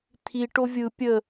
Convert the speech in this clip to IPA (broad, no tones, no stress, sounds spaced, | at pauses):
t̪ʰ i ʈ o vʲ ɯ pʲ ə